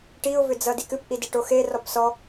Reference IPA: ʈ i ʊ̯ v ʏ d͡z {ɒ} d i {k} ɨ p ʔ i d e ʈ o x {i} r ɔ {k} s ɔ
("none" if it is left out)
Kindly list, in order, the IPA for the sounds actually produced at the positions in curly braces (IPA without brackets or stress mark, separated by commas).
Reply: ʌ, k, e, p